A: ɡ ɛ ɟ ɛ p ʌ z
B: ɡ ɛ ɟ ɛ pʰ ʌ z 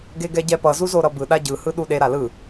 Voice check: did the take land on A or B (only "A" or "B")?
A